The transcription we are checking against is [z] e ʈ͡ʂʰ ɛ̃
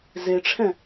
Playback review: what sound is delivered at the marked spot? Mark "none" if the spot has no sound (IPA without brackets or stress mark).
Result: z